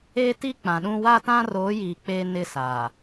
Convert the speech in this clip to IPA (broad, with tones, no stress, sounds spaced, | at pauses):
e˦ t i˦ k͡p ã˨ ɗ ũ˦ w a˦ t ã˦ r oː˨˦ j iː˨ k͡p e˦ n ɪ˦ s a˨